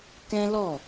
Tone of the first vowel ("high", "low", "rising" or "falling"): high